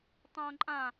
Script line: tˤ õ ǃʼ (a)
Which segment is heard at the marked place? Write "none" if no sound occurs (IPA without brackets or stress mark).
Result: ã